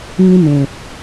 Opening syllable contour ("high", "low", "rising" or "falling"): high